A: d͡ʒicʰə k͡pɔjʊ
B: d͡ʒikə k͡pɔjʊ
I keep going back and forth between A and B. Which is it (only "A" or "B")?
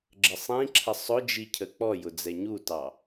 A